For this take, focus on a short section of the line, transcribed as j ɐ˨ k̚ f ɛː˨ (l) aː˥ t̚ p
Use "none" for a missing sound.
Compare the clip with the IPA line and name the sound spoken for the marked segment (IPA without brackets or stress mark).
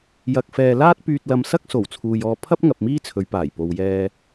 l